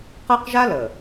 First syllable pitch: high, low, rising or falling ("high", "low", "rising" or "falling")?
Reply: high